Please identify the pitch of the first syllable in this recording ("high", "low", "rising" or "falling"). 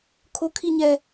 high